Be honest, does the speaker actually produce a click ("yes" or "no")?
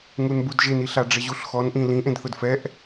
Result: no